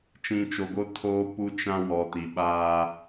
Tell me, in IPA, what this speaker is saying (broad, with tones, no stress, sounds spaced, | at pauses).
t͡ʃ ĩ˨ t͡ʃ o˨ ɡ o˦ tʰ oː˦ p u˦ t͡ʃ ã˦ w ɔ˨ t i˨ ɓ a˦